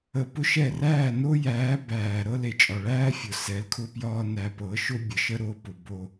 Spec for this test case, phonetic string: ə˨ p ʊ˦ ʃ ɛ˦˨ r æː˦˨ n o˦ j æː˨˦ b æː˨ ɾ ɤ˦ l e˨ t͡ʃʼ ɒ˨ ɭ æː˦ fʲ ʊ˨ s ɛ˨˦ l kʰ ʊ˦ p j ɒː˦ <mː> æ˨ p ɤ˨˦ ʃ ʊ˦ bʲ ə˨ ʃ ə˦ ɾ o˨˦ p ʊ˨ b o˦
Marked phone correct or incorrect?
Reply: incorrect